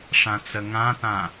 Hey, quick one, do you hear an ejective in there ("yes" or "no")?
no